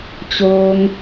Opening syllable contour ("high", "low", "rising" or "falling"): low